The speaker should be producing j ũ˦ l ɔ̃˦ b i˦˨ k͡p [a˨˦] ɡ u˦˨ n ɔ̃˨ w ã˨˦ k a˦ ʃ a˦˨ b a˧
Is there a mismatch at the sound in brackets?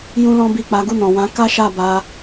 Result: no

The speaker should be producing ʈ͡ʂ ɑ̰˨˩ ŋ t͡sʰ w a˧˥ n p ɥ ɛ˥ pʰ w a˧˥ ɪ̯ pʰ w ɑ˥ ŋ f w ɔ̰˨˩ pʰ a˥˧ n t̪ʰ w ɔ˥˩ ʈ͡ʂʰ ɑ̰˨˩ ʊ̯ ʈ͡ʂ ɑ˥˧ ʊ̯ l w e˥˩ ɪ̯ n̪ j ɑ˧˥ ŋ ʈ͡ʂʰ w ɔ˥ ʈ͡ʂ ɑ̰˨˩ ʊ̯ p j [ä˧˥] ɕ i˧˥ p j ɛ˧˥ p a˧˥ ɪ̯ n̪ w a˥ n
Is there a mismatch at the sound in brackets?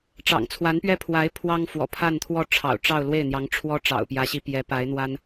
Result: no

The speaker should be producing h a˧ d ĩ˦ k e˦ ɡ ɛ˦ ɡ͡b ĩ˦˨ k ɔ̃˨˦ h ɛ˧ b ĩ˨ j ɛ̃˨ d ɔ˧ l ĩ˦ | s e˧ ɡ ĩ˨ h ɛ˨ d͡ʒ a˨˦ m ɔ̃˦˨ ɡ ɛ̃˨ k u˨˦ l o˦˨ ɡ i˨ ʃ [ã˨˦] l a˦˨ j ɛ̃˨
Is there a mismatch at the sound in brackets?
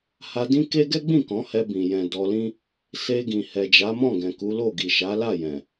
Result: yes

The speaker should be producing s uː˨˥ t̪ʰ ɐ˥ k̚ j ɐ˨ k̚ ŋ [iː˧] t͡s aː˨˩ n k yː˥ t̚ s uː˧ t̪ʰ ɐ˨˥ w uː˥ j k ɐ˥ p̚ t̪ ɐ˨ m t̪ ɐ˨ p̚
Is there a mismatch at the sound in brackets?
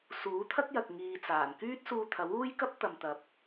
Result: yes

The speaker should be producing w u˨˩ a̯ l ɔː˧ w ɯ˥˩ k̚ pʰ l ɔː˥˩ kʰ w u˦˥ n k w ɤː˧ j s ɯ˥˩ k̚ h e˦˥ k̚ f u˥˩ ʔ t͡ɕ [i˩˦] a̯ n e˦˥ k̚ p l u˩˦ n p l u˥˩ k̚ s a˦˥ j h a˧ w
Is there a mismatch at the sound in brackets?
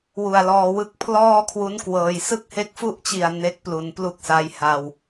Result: yes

